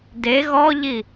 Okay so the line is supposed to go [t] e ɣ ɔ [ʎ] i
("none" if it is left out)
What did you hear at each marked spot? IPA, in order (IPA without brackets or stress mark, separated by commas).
d, ʎ